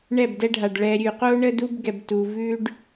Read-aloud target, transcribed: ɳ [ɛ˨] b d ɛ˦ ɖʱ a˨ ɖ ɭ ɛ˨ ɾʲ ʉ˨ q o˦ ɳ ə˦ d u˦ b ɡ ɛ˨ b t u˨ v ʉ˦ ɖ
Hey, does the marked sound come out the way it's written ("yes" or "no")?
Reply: no